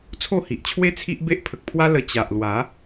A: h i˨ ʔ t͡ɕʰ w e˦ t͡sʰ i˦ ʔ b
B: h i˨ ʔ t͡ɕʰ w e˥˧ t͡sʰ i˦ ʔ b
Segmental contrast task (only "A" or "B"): A